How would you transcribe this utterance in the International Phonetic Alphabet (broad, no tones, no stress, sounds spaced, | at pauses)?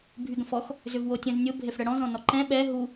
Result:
bʱ y ɡ ə̃ f ɔ x | z ʏ v w o tʲ ə̃ z nʲ ʊ bʱ e f ɽ ə ɽ ɔ̃ z ɔ̃ n ɔ ǃ ɛ̃ ɓ ɛ ɦ u